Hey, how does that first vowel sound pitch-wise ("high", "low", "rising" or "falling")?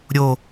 low